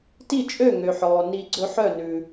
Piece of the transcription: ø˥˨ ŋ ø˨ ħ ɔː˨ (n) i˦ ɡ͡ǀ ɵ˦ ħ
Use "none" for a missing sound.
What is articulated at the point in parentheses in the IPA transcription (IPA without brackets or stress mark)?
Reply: n